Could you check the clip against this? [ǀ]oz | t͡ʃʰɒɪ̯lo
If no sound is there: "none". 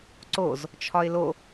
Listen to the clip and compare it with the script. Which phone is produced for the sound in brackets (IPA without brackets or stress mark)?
ǀ